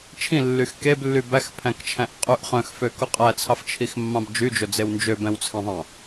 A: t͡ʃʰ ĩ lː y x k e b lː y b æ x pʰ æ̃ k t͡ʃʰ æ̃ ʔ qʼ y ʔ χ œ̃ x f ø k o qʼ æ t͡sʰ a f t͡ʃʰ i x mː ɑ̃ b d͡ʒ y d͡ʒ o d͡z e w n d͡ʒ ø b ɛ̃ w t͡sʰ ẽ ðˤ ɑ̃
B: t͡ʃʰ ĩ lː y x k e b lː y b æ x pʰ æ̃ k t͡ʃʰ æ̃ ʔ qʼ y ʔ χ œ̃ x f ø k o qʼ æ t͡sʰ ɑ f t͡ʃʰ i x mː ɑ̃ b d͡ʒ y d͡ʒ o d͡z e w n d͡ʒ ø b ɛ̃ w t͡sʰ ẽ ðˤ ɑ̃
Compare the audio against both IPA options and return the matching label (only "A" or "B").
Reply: B